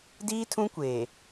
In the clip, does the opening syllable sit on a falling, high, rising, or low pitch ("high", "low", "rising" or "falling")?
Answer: high